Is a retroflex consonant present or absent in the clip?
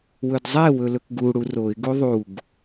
present